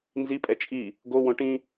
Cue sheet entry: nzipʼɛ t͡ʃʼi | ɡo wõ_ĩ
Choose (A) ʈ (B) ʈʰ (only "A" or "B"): A